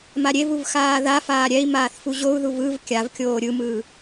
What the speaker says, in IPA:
m a ɾʲ e v u v x aː ð a f aː ɾʲ ɛ i̯ m aː θ f u ʑ o u̯ ð u v ɯ v kʲ a v kʲ oː ɾʲ ɯ m ɯː

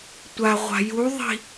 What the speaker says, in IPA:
tʷ a ʁʷ a̤ j u ðˤ i̤

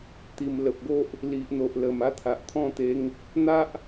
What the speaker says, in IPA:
t̪ i˨˩ m l ə˨ p̚ ɡ o˦ ʔ | l i˨ ʔ n̪ o˨ ʔ l ə˨˩ m a˥˧ t̪ʰ a˨ ʔ t̪ʰ ɔ̃˥˧ t̪ e˧ ŋ | n̪ a˦ ʔ

